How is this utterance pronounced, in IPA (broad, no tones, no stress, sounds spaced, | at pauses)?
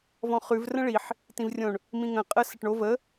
v ɔ̃ χ ʉ v r ə̃ ɭ i ħ | t ĩ v rʲ õ ɳ | m ĩ ŋ ə̃ qʼ ə s ə ʈ ɳ o v ə